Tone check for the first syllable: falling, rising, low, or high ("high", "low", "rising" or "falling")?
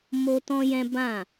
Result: high